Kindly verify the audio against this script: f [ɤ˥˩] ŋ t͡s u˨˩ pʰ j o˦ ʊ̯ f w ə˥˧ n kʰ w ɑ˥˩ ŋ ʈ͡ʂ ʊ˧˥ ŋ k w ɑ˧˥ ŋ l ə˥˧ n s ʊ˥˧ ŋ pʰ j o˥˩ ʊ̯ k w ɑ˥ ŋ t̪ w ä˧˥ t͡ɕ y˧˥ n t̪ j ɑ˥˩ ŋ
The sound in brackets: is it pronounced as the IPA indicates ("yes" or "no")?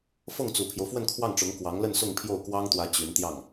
yes